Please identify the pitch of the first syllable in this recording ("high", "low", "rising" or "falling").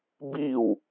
falling